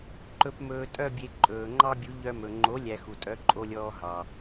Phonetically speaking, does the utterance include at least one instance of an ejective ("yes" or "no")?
yes